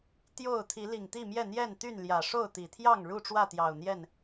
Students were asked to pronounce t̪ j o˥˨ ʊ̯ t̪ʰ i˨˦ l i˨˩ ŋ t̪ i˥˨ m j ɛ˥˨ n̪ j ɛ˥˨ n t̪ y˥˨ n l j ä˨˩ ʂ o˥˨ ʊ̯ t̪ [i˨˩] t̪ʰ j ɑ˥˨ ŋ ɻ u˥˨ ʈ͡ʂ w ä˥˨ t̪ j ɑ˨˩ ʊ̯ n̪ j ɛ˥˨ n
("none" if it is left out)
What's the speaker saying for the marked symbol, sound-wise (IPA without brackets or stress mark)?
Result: i˨˩